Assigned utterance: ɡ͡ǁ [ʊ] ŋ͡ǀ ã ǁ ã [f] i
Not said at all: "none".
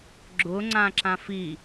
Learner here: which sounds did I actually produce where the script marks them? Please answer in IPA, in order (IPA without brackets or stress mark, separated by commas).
ʊ, f